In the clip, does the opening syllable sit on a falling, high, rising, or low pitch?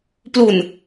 low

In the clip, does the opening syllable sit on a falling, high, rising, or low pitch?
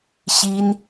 high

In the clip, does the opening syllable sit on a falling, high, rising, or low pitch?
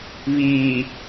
low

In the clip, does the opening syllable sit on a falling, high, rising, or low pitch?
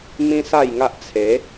high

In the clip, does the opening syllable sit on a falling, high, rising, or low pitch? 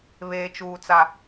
low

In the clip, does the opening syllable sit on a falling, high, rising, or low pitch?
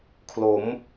rising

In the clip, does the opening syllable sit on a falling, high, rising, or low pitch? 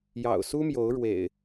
low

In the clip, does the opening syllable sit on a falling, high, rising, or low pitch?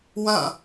falling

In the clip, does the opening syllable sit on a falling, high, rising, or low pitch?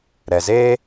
low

